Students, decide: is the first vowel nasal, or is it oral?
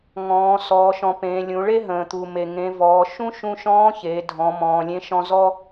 nasal